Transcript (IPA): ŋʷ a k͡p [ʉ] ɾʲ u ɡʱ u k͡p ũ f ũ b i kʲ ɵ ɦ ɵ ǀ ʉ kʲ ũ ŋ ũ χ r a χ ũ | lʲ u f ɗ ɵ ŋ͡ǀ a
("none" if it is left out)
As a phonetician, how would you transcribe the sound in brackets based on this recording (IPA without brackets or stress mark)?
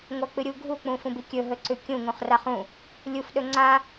ɨ